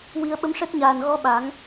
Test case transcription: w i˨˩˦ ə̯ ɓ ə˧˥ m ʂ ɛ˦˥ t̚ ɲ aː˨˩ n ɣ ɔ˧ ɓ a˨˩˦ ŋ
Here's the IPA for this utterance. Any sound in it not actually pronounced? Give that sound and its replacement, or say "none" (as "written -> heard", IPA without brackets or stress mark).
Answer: none